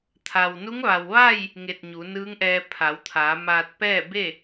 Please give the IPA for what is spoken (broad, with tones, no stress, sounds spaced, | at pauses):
t̪ʰ a˩ w n u˧˥ ŋ ʋ a˩ w ʋ a˥˨ j | ŋ e˧˩ t̚ ɲ u˩˧ n ɯː˧˥ ŋ ʔ ɛː˧ pʰ a˩˧ w t̪ʰ aː˩˧ m aː˧ t̚ p ɛː˥˨ b e˥˨